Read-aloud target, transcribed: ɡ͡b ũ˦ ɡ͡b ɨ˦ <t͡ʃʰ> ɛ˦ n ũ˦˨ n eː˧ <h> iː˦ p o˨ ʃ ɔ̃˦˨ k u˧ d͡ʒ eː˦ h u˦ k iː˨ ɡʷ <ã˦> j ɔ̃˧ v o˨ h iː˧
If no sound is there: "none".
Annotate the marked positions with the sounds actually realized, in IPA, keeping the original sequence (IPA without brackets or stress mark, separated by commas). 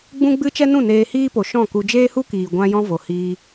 t͡ʃ, h, ã˧